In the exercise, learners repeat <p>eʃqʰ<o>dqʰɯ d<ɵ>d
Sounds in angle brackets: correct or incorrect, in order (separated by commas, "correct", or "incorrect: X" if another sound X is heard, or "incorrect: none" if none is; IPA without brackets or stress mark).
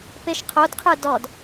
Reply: correct, correct, incorrect: ɔ